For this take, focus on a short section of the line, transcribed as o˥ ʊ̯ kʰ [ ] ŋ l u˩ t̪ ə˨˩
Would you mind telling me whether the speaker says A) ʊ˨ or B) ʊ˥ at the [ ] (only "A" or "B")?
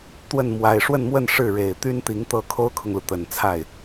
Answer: A